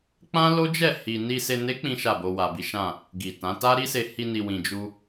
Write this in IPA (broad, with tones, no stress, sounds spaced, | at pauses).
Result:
k͡p ã˦ l o˦ d͡ʒ ɛ˦˨ h i˨ n i˨ s e˨ n e˨˦ k͡p ĩ˦ ʃ a˦˨ b o˧ w a˨ b i˨˦ ʃ ã˦˨ | ɡ i˨ t ã˨˦ t a˦ ɾ i˦ s e˧ h i˧ n i˨ w ĩ˨ d͡ʒ u˧